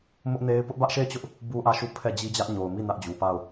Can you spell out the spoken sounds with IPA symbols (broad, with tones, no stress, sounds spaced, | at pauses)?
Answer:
m ʊ˦ ʔ n e˦ ɪ̯ p ʊ˦ ʔ b ä˦ ʔ ʃ e˦˨ ɪ̯ t͡ɕ ʊ˦ ʔ | b u˦ ʔ ä˦˨ ʃ u˦˨ pʰ ɛ˦˨ d͡ʑ i˦ d͡ʑ ä˦ ʔ ɲ o˨ ʊ̯ m i˦˨ n ä˦ ʔ d͡ʑ u˨ p a˦˨ ʊ̯